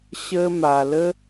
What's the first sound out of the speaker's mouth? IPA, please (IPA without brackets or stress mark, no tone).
ɕ